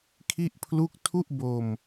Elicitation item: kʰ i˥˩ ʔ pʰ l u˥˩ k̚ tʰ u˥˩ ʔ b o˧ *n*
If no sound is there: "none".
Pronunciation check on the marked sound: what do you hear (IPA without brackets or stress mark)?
m